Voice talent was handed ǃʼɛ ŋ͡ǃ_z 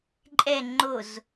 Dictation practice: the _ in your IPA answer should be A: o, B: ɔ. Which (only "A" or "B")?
A